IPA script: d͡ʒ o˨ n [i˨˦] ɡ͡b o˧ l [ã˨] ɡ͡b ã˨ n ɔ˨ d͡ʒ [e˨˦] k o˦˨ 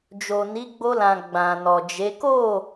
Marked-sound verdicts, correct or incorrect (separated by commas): correct, correct, correct